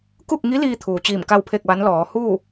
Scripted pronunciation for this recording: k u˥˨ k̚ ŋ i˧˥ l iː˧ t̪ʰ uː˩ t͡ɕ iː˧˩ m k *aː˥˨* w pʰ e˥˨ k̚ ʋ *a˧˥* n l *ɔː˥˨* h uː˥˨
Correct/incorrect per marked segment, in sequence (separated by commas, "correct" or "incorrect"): incorrect, correct, incorrect